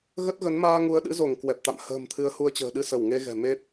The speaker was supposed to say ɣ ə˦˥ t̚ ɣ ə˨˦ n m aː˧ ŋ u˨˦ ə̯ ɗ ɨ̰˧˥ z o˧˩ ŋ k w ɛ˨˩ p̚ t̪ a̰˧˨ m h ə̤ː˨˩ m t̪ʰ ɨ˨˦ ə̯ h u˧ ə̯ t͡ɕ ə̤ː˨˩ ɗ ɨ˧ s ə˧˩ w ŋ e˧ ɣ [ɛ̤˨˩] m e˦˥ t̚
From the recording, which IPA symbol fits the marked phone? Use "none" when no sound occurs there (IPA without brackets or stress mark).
ɛ̤˨˩